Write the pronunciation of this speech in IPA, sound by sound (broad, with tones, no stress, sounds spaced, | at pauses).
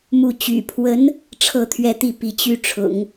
m u˥˩ t͡ɕ y̰˨˩ pʰ w ə˧˥ n | ʈ͡ʂʰ ɤ˥˧ t̪ʰ ɥ ɛ˥˧ t̪ i˥˩ p i˧˥ t͡ɕ y˥˩ ʈ͡ʂʰ ʊ̰˨˩˦ ŋ